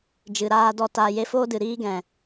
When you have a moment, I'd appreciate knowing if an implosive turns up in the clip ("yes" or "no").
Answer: no